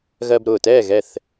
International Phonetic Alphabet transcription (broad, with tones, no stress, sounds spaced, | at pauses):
ɣ ɜ˧ b ɾ ʊː˨˩ t ɛː˥˨ ɣ ɛ˥˨ θ